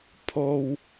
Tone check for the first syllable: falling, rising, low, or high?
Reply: low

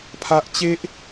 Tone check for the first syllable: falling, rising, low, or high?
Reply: high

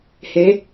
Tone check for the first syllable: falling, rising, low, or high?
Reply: rising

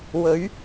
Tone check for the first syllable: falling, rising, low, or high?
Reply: rising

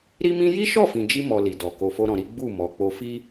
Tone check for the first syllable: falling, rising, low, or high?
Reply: high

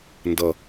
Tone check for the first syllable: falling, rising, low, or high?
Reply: low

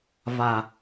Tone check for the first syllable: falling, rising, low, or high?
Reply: low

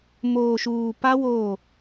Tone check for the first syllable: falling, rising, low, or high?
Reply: low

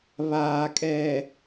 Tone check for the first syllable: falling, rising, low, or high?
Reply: low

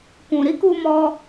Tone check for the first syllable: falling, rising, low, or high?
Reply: low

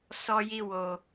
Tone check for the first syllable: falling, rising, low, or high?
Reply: high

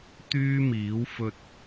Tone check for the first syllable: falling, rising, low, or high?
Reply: high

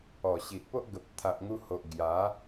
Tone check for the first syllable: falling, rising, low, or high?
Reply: low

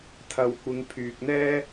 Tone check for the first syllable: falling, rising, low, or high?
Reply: low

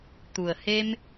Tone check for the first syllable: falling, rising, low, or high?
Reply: low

